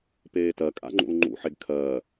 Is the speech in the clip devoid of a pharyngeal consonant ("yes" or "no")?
no